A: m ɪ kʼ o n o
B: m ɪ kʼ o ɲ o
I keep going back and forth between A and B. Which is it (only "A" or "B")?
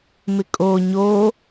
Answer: B